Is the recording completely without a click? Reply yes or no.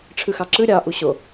no